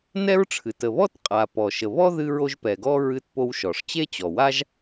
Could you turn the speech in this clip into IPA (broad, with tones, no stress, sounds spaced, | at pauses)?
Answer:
n ɛ˥ ɹ ʈ͡ʂʰ ɨ˩ t ə˩ β ɔ˥ t qʼ a˩ p ɔ˩ ʃ ə˩ β ɔ˥ ð ɨ˧ ɹ o˧ ʒ p ɛ˩ ɡ ɔ˧ ɹ ɨ˧ t p o˧ w ʃ ɔ˩ ʂ t͡ɕ e˥ t͡ɕ ɔ˩ w a˥ ʒ